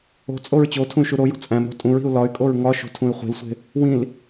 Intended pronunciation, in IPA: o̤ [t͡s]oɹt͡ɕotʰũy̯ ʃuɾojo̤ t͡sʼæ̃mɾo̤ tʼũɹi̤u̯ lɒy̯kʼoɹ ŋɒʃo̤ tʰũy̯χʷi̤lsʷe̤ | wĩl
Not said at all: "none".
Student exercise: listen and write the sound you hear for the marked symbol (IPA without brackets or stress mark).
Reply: t͡sʼ